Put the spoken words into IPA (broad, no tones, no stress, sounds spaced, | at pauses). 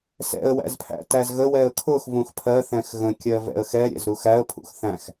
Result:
s ɛ̰ ə̯ w æ̰ z pʰ æ̰ t æ z ɣ ə w ɛ ə̯ kʰ ʊ x v ũ x pʰ ɜ θ ɛ̃ x ɣ ə̃ kʲ ɜ v ɛ̰ ə̯ x ɛ ɾʲ ɛ̰ z ɾ u x æ ə̯ pʰ ṵ x θ æ̃ x